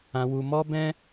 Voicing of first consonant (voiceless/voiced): voiced